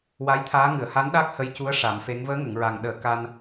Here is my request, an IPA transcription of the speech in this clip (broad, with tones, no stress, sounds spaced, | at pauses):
w a˧˥ j t̪ʰ aː˧˥ ŋ ɨ˨˩˨ ə̯ h a˧˥ n ɗ a˦˥ k̚ h ə˧ j c u˧˥ ə̯ ʂ a˨˩˦ m f e˧˥ ŋ v əː˧˥ ŋ ə˨˩˨ ŋ ɹ a˨˩ ŋ ɗ əː˨˩˦ k a˧ n